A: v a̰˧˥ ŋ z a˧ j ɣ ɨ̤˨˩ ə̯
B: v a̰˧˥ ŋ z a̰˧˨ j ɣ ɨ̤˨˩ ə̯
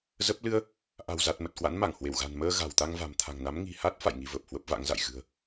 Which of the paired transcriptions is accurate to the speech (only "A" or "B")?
B